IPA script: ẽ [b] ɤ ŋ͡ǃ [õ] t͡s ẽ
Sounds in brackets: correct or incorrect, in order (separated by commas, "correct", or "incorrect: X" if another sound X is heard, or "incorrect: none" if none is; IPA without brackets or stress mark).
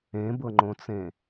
correct, correct